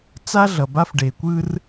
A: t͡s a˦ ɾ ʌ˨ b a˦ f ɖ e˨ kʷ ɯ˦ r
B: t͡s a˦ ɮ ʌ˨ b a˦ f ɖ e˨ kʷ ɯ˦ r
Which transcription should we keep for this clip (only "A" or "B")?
B